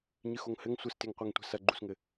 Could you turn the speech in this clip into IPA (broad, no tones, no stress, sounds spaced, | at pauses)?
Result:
ɲ ɨ x o ŋ h ɘ ŋ sʷ ɘ s t e ŋ qʷ ɛ ŋ tʷ ɛ̤ s ɐ ɡ͡ǃ u s ŋ ɘ